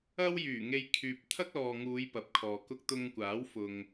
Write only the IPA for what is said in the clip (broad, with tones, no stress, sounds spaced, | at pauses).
ɐ˥ w j yː˨˩ ŋ e˧ j kʰ yː˨ p̚ t̪ʰ ɐ˥ k̚ l ɔː˨ ŋ uː˨˧ j p ɐ˨˥ p̚ kʰ ɔː˨ k ʊ˥ k̚ t̪ ʊ˧ ŋ kʷ aː˨˥ w f ʊ˨ ŋ